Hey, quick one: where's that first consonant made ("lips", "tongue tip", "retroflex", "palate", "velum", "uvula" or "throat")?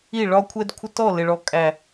retroflex